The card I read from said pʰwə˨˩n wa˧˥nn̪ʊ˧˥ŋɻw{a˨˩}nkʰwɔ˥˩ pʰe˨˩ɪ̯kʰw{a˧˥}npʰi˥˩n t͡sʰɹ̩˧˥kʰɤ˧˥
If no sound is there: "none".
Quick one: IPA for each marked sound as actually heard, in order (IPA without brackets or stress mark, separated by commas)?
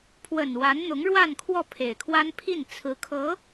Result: a˥˧, a˥